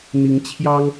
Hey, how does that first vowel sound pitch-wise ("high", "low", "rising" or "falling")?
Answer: rising